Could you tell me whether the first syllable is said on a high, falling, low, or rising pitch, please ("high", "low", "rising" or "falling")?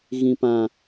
low